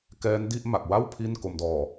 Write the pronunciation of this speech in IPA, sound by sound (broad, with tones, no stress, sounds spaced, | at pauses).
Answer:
k ɛː˦˥ n d i˥˩ ʔ m a˨˩ k̚ w a˥˩ w pʰ i˥˩ n k o˧ m d ɔː˨˩